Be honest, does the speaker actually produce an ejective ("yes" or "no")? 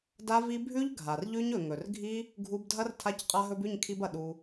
yes